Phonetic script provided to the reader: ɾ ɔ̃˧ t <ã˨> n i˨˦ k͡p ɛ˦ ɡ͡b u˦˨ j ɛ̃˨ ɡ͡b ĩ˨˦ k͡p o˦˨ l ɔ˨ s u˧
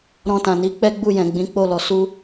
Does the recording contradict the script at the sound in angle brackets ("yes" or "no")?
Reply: no